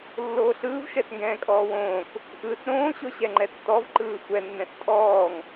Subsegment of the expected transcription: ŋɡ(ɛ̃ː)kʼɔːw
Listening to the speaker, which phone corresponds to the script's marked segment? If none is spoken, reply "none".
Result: ɛ̃ː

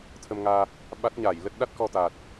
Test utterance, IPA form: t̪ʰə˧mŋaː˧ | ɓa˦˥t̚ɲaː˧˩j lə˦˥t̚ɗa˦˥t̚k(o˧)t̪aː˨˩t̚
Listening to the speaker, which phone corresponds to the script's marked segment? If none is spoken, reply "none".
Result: ɔ˧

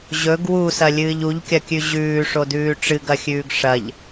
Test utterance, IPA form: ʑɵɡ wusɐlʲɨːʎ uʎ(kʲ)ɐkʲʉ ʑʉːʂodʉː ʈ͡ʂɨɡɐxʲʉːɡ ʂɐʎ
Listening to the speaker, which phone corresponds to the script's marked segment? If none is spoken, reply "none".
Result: kʲ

